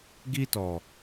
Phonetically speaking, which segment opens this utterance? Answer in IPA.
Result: ɡ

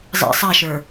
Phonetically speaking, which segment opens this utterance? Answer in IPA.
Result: zˤ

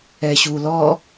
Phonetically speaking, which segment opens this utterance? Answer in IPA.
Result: ɛ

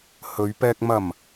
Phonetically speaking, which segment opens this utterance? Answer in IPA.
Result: h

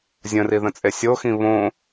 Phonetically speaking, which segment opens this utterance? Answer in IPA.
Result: zʲ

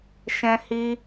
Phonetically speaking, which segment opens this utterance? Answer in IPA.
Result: ʃ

